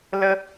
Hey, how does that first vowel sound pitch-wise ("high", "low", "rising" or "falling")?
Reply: high